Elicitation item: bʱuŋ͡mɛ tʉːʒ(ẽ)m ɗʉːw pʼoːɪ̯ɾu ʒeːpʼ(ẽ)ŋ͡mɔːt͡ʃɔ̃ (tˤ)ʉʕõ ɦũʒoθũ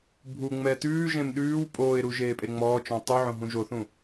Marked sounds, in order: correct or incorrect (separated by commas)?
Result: correct, incorrect, correct